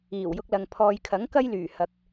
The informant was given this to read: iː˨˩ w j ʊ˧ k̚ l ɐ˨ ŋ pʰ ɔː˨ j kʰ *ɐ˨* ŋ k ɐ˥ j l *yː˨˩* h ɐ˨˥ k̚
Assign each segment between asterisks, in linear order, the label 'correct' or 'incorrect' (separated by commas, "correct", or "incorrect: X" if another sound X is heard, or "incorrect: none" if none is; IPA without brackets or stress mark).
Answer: incorrect: ɐ˨˥, correct